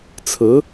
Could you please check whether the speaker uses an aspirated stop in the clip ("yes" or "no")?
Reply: yes